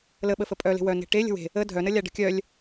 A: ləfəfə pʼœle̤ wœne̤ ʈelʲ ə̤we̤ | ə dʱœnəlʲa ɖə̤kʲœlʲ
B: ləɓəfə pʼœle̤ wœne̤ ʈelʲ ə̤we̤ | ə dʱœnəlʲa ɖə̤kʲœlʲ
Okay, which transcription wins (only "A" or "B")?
B